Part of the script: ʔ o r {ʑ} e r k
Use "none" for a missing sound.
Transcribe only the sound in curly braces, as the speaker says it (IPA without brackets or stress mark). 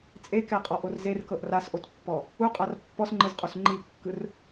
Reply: z